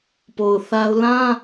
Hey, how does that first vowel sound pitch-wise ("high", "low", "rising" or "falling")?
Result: low